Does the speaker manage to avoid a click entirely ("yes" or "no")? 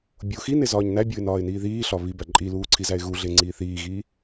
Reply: no